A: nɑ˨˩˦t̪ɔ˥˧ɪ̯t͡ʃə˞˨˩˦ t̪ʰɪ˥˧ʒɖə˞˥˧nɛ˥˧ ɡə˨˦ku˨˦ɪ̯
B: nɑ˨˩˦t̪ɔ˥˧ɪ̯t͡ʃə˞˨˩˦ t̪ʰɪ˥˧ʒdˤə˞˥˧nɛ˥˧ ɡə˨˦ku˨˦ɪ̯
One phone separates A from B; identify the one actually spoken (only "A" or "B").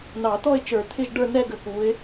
A